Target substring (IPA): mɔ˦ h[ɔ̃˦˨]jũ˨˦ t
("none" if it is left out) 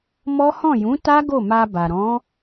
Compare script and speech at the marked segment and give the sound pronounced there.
ɔ̃˦˨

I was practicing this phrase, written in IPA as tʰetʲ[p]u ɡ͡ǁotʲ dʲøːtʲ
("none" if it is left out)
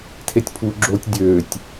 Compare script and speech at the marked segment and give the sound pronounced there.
pʰ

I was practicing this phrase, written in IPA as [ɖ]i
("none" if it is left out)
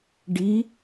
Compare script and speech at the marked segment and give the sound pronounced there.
ɖ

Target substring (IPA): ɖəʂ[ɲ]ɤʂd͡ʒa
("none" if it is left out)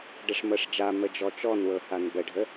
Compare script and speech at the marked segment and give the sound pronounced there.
m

